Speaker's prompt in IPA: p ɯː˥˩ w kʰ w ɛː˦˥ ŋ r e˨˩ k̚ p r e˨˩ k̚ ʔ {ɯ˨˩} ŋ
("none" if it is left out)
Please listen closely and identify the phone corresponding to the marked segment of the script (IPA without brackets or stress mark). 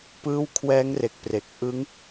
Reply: ɯ˦˥